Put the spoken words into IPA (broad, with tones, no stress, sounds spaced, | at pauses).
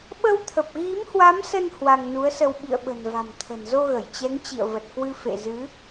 ɓ ə˧ w t̪ʰ ə˨˩ p̚ ɣ i˨˦ m h w a˨˦ m s ə˧ n h w a˧ ŋ n u˨˦ ə̯ s ə˧ w ɓ ḭ˧˨ ə̯ ɓ ə̤˨˩ n v a̤˨˩ m t̪ʰ ə̤˨˩ n z o˧ ɣ ə˧˩ j t͡ɕ ɛ˨˦ ŋ t͡ɕ ḭ˧˨ ə̯ v ə˨˩ t̚ k w ɨ˧ f ḛ˧˨ z ɨ˨˦